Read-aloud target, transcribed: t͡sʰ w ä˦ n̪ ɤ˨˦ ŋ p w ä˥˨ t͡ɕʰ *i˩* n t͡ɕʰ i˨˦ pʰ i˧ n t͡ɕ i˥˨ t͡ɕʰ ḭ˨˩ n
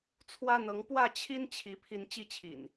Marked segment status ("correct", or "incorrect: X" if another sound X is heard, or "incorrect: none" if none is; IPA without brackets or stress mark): incorrect: i˦